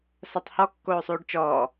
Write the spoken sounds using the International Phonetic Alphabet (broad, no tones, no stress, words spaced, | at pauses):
satˤhɔ kːoːsˤuːɖt͡ʃɔː